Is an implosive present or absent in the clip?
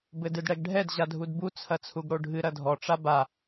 absent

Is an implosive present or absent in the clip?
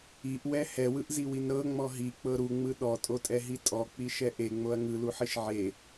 present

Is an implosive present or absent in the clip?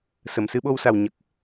present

